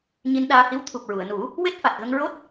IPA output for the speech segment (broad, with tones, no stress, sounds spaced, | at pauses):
ɲ i˧ n ɗ aː˧ h i˧˥ w t̪ʰ u˨˩ p̚ ɹ u˨˩˨ ə̯ n u˨˩˦ | w e˦˥ t̚ f a˨˩ t̚ ɣ ə˧ ŋ ɹ o˦˥ t̚